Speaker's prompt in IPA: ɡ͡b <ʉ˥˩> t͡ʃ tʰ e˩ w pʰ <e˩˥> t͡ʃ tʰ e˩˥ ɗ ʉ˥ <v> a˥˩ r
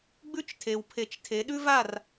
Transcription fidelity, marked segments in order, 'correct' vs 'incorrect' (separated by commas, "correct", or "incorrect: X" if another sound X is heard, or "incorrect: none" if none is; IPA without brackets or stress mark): incorrect: ʉ˥, correct, correct